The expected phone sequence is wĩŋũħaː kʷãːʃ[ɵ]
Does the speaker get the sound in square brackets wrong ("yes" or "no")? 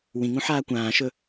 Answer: no